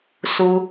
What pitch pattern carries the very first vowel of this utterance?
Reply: high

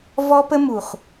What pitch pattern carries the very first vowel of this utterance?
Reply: high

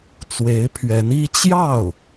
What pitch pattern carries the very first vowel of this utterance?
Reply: rising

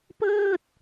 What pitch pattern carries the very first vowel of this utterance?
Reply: falling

